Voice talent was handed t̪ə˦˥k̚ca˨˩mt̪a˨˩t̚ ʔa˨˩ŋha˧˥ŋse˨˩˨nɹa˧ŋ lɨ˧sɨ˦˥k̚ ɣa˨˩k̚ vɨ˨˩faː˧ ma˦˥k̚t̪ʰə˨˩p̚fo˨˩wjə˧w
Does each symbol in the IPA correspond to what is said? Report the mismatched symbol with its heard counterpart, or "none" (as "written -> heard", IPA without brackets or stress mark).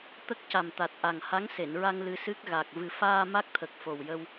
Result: p̚ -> k̚